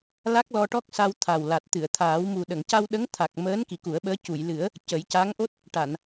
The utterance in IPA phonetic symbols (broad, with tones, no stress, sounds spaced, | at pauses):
l a˦˥ k̚ l ɔ˧ ʈ ɔ˦˥ k̚ s a˧ w t̪ʰ a˨˩ w l a˨˩ t̚ t̪ ɨ˨˩˨ ə̯ t̪ʰ aː˨˩˦ w m u˨˩ ɗ ə˨˩˨ ŋ c a˧ w ɗ ə˧˥ ŋ t̪ʰ a˨˩ k̚ m əː˧˥ n k i˨˩˦ k u˨˩˦ ə̯ ɓ əː˧˥ c u˨˩˨ j l ɨ˨˩˦ ə̯ | c ə˨˩˦ j c a˧˥ ŋ ʔ o˦˥ t̚ | ʈ a˨˩˨ n